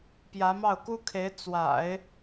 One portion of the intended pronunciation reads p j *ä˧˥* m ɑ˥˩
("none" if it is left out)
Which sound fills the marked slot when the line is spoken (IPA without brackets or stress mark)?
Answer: ä˧˥